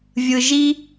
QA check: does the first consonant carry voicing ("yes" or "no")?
yes